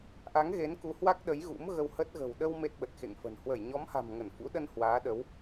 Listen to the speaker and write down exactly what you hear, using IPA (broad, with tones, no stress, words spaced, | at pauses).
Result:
ʔa˨˦ŋ ɣe˨˦nku˨˦hwa˦˥k̚ ɗə˨˦jɣṵ˧˥m ɣə˧whə˦˥t̚ɣə̤˨˩w ɗə˧w me˦˥t̚ɓə˨˩t̚xḛ˧˨ŋfə̤˨˩n hwə˧˩jɲɔ˨˦mha̤˨˩m ŋə˧˩nfṵ˧˥ɗə˧n hwaː˨˦ɗə˨˦w